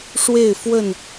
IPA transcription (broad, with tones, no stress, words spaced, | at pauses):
ʂwe˥˨ɪ̯fwə˥˨n